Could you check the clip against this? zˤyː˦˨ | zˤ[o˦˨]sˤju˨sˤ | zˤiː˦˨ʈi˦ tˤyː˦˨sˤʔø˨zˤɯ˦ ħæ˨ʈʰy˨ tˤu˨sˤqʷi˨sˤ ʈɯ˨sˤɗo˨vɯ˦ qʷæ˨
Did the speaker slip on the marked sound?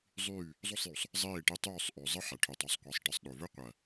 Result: no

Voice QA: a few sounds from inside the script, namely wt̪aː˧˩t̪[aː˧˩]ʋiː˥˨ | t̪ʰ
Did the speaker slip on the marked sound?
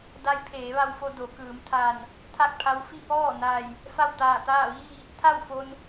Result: yes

